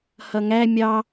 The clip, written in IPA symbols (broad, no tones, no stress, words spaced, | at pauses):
hʌŋæ mʲɑ